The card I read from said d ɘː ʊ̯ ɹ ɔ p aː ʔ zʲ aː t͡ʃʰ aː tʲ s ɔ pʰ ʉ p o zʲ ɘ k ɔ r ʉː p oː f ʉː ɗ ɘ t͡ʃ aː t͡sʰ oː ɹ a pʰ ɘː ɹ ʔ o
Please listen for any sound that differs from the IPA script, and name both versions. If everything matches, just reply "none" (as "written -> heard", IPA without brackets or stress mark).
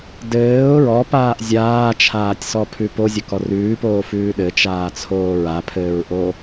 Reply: none